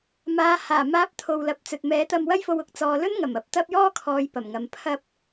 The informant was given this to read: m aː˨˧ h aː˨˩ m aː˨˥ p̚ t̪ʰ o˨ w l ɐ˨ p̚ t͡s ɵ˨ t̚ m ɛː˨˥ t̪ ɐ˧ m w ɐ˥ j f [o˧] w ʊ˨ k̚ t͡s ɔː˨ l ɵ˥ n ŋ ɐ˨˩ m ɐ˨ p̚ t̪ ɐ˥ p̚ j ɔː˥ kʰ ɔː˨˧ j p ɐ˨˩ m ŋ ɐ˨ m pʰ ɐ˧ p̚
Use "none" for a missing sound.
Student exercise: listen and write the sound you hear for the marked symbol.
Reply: o˧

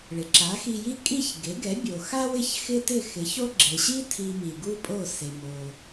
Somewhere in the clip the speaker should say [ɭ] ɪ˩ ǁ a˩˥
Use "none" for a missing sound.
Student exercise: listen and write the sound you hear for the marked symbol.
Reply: ɭ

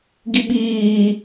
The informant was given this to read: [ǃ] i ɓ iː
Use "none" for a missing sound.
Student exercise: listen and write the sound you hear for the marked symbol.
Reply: ɡ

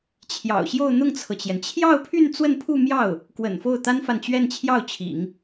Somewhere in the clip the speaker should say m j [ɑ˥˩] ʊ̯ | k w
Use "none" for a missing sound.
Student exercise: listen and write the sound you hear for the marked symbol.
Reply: ɑ˥˩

